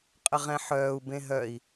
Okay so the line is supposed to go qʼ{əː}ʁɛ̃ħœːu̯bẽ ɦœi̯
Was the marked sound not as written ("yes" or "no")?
yes